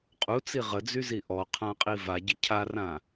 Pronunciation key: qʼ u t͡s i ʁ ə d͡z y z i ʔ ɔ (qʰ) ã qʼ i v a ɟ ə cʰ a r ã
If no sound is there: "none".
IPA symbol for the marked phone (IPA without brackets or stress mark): qʰ